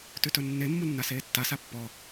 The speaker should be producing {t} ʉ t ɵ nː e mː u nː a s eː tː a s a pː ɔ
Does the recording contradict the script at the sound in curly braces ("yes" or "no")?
no